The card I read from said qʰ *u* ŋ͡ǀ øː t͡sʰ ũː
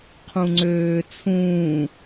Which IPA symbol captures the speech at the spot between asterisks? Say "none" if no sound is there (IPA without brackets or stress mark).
ũ